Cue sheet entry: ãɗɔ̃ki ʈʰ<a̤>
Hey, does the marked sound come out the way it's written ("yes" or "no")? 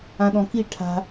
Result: yes